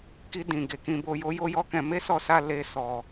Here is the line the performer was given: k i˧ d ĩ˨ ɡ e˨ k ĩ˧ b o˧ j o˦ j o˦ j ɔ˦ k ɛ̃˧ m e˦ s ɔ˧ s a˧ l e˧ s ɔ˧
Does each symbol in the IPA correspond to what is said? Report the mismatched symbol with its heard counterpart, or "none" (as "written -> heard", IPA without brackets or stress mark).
none